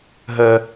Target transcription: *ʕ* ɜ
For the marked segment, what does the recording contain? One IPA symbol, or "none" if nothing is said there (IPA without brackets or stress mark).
ɦ